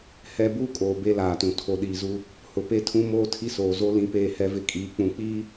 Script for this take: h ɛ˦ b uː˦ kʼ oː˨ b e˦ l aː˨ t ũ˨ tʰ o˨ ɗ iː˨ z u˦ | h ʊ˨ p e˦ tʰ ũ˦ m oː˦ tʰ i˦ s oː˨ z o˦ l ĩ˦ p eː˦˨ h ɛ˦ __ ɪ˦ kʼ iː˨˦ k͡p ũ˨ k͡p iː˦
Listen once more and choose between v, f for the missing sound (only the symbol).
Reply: v